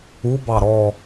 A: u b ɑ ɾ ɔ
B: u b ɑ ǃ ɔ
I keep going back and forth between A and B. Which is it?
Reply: A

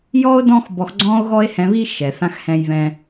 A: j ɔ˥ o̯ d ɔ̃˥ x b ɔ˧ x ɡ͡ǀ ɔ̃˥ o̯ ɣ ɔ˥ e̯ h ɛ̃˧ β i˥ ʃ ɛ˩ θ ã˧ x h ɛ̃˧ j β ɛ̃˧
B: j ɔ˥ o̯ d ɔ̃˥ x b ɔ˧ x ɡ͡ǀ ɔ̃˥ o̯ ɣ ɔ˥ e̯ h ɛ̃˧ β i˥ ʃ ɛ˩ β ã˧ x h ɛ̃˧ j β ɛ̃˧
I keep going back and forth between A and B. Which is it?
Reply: A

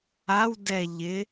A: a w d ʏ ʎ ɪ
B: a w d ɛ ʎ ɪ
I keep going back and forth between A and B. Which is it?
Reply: B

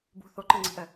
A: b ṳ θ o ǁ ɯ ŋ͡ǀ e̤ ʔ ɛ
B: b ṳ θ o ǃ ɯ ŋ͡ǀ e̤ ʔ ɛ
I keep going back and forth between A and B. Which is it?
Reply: B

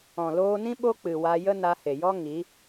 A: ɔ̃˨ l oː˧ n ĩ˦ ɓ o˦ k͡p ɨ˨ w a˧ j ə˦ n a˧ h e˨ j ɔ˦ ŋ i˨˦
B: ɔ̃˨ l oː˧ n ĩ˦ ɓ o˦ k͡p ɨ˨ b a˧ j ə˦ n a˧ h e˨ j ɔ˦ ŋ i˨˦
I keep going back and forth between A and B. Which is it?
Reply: A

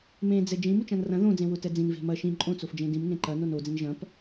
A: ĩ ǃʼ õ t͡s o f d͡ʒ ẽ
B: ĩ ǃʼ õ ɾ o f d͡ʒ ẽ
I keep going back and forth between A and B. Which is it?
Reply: A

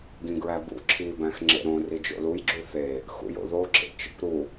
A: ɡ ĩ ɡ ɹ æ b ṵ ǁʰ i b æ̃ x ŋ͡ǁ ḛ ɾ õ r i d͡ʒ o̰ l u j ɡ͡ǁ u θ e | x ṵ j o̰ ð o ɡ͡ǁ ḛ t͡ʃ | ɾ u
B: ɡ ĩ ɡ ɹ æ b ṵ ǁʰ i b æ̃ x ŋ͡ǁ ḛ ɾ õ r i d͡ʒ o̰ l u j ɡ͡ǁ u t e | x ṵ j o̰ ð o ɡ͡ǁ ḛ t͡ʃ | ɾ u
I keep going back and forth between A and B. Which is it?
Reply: A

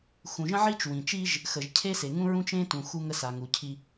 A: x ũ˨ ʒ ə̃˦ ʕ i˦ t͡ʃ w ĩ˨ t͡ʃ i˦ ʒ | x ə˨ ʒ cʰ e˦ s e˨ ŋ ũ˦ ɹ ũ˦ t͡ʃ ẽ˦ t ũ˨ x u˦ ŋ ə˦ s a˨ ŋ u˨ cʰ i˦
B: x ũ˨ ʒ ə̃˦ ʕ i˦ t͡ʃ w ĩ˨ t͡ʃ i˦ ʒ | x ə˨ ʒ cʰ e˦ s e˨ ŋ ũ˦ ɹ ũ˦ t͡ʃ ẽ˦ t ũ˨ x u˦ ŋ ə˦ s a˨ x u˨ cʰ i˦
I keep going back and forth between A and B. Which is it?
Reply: A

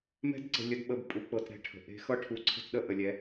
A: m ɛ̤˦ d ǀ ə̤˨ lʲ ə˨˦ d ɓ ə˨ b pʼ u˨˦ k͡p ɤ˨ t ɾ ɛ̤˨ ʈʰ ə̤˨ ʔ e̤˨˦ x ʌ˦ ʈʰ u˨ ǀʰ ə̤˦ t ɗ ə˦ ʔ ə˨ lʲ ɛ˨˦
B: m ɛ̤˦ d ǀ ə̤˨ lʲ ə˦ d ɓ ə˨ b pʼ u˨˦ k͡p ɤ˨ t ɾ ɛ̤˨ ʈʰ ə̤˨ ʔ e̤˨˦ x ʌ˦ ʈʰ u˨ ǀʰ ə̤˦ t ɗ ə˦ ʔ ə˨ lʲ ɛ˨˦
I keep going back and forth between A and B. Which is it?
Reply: A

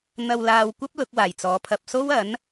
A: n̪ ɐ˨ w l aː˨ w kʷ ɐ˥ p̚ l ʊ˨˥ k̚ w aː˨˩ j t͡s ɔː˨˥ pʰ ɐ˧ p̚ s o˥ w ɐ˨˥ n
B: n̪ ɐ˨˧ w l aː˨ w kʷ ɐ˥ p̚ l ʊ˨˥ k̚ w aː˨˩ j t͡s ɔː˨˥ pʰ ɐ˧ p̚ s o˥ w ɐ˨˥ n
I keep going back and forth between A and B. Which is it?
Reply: A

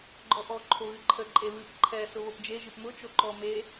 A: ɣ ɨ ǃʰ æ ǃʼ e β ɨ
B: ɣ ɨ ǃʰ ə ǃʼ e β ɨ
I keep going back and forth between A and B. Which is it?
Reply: B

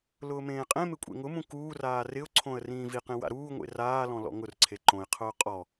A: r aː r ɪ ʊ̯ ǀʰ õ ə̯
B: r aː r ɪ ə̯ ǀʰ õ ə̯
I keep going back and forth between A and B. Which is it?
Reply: A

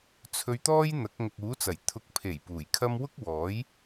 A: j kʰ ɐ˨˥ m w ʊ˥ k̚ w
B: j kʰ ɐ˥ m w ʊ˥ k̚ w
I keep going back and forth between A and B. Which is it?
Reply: B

